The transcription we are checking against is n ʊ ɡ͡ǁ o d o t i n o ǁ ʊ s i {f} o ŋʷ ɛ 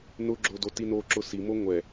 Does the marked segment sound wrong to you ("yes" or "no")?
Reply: yes